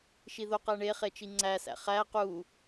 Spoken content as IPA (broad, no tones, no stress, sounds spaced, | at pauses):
ʃ i ð o q æ ɳ e χ e t͡ʃ i ŋ͡ǀ æ s æ̰ χ æ q u